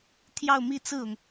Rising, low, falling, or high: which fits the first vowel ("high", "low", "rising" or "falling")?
falling